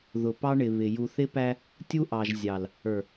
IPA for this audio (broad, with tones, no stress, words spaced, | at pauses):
ðʊ˨pɑ˦ɳɪ˨ βɪ˨ ju˨θɪ˦pæ˦ | tʲu˦ʔɑ˨ʒ zʲɑ˨l | ə˞˨